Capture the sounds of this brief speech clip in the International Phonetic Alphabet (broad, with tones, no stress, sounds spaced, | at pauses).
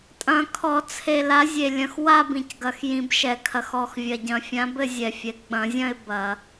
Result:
tʼ ɐ̃˧˩˧ kʰ ɔ˧˩˧ t͡sʰ e˨˩ l a˨˦ zʲ e˨˩ lʲ ɐ̃˨˩ x w a˥˧ b ĩ˨˩ c ɡ ɐ˨˩ x j ĩ˧˩˧ b ʃ ɛ˧˩˧ kʰ ɐ˨˩ x ɔ˨˩ x vʲ ɐ˨˩ ɟ ɐ̃˧˩˧ fʲ ã˨˦ b ɘ˥˧ zʲ ɛ˨˩ fʲ ɛ˨˩ ɡ͡b ɐ̃˧˩˧ zʲ ɐ̃˥˧ ɪ̯ b ɐ˧˩˧